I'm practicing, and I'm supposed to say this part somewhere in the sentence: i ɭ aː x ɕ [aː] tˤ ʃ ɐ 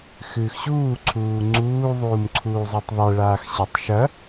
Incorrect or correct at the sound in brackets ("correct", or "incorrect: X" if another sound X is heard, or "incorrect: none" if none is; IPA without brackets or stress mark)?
incorrect: a